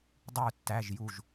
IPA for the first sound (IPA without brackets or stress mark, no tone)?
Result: dˤ